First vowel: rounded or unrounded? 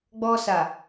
rounded